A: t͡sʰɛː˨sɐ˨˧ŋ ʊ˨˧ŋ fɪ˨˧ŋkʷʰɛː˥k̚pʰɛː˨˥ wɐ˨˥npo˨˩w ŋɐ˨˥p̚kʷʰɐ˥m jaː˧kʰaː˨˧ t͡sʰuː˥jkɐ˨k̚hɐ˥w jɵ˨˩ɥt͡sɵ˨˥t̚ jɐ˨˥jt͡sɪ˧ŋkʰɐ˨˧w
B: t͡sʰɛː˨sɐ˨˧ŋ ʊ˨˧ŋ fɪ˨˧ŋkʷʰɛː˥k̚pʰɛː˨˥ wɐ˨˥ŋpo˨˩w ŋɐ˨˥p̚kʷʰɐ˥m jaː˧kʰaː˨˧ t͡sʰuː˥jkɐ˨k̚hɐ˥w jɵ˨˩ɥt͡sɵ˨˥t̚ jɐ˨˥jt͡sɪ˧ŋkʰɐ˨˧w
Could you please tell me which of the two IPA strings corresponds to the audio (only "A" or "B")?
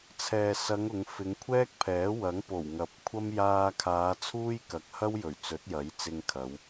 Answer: B